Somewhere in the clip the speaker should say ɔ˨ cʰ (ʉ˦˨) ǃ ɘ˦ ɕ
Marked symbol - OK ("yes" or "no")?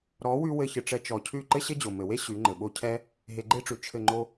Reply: yes